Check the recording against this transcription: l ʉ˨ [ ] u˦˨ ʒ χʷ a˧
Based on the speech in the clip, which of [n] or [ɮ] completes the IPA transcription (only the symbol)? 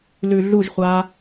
ɮ